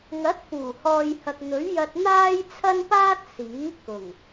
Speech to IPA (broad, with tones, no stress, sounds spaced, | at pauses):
ŋ ɐ˨˥ t̚ f uː˨˩ h ɔː˨ j h ɐ˨ k̚ n̪ ɵ˨˥ ɥ j ɐ˧ t̚ n̪ aː˥ j t͡sʰ ɐ˥ n p aː˥ t̚ s iː˨˥ k ʊ˨˩ ŋ